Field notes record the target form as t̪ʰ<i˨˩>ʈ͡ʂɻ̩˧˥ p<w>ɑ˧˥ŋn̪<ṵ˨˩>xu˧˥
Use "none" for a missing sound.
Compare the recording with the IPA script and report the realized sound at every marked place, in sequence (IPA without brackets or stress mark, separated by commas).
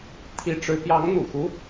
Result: i˧˥, j, ṵ˨˩